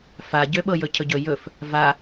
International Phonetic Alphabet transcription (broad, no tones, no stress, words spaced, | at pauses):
faɟø ɓɤjɵcʰɵɟɵ jɵf | va